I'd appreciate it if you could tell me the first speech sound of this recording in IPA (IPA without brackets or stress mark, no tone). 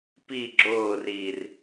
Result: p